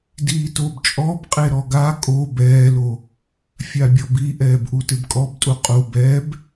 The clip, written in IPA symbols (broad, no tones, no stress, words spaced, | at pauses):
diːtobt͡ʃʼɔb qʼeɾɔɡa kʼo bɛːlo | fʲabʲɔbiʔɛːb ʔutɪbkʼɔbtʼu qʼu bɛb